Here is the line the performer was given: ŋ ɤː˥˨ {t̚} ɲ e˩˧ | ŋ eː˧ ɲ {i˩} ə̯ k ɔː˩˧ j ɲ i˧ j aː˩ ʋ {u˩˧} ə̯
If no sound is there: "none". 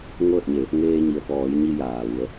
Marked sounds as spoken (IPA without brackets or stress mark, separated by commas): t̚, i˩, u˩˧